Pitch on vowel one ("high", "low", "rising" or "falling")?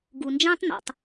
low